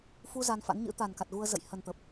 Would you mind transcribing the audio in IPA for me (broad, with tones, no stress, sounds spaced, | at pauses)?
f u˧ z a˧ n f a̰˧˥ n ɲ ɨ̰˧˥ t̪ a˨˩ n k a˨˩ t̚ ɣ u˧ ə̯ z ə̰˧˨ j h ə˨˩ n t̪ ə˨˩ p̚